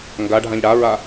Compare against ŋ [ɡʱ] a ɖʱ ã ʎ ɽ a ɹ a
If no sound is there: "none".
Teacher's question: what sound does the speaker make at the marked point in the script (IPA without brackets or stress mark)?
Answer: ɡ